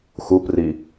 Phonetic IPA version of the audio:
x u p r i

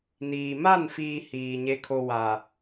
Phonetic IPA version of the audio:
n iː˨ m a˦˨ n f iː˨ h iː˨ ɲ e˨ kʰ o˨ w a˨

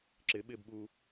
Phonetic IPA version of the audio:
ǁ ɪ ɓ ɪː b ɓ u

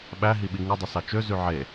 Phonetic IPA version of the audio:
ɓ æ ɦ i ɓ i ŋ ɯ dˤ ɯ s ɑ t͡ʃ ø z y ʕ e

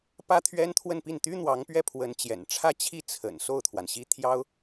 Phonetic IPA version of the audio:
p ä˥ t̪ʰ ɥ ɛ˥ n t̪ʰ w ə˥˧ n p i˥˩ n t̪ y˥ n̪ w ɑ˧˥ ŋ p ɥ ɛ˥˩ pʰ w ə˧˥ n t͡ɕ j ɛ̰˨˩ n ʈ͡ʂʰ ä˥˧ t͡ɕʰ i˥˩ t͡sʰ ə̰˨˩ n s o˥˩ ʊ̯ t̪ʰ w a˩ n ɕ i˥ t̪ʰ j ɑ˥ ʊ̯

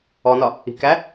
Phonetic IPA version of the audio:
ɔ n ɒ | i̤ k æ

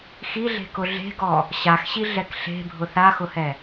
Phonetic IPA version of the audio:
x i ɮ e̤ k ʊ ɮ e̤ ɡ ɔ | ɕ a x ɕ i ɮ ɛ k ɬ e̤ bʱ ʊ θ a x ʊ h ɛ

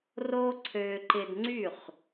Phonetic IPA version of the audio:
r o˥ ǀʰ ø˧ ǃ ɪ˧ d ŋ͡ǀ y˥˩ χ

